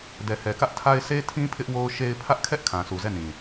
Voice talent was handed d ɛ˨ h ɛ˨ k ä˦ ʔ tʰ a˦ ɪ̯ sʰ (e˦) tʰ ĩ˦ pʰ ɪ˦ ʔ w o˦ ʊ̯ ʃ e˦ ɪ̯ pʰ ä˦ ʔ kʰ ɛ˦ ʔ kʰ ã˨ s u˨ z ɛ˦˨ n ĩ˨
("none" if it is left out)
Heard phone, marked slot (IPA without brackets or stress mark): e˦